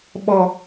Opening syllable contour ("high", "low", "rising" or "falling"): high